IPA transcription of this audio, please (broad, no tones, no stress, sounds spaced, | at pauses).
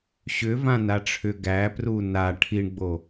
ɕ ʏ v ã n a ʈ͡ʂʰ ʏ ɡ æ p r u n a ʈʰ i ɳ ɡ͡b o